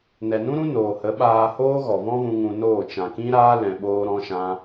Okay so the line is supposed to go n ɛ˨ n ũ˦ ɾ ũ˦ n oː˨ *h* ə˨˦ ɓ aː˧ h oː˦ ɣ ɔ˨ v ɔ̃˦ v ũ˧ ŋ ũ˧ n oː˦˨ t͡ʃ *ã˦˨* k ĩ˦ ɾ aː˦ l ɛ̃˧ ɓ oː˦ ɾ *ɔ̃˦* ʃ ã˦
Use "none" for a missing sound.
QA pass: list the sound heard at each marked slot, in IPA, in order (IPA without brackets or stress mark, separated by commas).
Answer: h, ã˨, ɔ̃˦